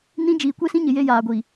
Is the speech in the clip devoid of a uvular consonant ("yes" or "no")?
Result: yes